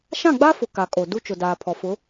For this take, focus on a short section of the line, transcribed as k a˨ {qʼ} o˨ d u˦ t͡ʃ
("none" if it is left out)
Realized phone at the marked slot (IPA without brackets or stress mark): kʼ